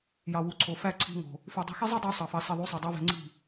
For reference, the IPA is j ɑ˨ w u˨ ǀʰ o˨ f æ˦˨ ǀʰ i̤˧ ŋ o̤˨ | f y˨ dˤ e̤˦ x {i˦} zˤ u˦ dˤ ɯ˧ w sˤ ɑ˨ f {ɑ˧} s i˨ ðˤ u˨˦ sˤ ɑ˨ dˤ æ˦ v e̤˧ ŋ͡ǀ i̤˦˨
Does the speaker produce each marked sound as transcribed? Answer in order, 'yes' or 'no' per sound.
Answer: yes, no

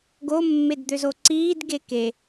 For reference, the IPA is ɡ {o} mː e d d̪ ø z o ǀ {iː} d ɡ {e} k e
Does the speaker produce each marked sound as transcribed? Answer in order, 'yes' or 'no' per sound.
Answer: yes, yes, yes

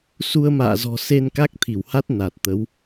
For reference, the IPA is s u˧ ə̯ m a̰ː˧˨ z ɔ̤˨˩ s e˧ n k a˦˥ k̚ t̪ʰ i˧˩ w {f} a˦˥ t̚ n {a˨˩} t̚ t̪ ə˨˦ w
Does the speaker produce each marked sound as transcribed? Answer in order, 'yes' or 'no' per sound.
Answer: no, yes

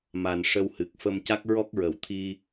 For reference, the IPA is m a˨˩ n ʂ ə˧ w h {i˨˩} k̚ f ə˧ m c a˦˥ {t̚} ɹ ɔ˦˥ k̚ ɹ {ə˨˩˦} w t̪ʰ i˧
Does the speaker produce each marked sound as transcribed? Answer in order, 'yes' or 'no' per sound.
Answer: no, no, no

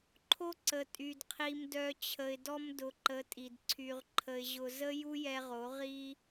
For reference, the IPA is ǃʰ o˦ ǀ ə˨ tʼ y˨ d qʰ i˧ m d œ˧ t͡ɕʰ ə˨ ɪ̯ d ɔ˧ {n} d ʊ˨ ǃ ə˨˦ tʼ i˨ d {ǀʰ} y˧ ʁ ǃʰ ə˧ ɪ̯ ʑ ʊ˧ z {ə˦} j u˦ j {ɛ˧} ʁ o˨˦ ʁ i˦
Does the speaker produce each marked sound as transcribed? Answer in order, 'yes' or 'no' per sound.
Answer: no, yes, yes, yes

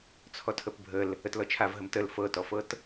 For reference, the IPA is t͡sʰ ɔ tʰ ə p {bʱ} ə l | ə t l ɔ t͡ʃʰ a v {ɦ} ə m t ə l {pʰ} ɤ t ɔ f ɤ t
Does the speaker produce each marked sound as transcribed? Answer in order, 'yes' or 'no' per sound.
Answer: yes, yes, no

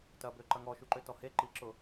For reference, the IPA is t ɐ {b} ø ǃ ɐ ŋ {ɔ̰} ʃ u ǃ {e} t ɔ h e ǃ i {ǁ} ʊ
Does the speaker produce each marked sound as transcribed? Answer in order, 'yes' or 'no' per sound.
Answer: yes, no, no, yes

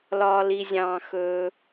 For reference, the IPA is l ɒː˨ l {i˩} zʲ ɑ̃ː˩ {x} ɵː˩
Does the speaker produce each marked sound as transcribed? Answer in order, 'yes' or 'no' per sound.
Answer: yes, yes

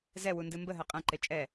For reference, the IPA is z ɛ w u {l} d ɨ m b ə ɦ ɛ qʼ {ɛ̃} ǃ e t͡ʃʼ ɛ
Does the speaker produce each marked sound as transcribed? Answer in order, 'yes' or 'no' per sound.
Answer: no, yes

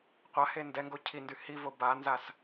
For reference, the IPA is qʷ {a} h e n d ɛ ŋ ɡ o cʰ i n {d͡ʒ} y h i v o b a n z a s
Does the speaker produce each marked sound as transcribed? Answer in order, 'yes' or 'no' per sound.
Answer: yes, no

